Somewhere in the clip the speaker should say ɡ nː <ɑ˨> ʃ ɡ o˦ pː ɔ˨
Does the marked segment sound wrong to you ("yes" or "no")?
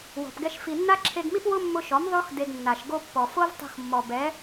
yes